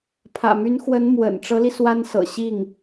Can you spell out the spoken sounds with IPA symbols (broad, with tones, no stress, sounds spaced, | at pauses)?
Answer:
pʰ ä̰˨˩ m y˧˥ n x w ə˧˥ n m w ə̰˨˩ n ʈ͡ʂ ɤ˧˥ l i˧ s w a˥ n s ɤ̰˨˩ ɕ i˥˩ ŋ